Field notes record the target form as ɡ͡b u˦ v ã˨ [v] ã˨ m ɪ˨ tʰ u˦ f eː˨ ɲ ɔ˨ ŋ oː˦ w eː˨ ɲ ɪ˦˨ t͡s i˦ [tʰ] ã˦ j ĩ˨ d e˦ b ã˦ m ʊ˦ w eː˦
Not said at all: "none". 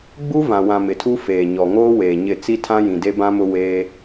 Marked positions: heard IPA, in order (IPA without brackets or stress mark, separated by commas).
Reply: w, tʰ